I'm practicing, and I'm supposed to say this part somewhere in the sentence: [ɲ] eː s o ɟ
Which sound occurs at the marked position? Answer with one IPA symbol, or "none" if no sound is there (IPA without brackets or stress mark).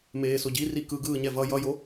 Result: m